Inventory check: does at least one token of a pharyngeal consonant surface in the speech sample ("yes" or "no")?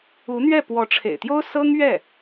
no